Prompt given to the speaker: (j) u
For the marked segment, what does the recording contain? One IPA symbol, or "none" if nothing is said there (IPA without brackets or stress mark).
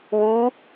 w